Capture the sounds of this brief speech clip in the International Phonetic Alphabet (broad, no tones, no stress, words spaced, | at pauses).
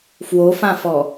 fwofãfɔ